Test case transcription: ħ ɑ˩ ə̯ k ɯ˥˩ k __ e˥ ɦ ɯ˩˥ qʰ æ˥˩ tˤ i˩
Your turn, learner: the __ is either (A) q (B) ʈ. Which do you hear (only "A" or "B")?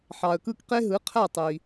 A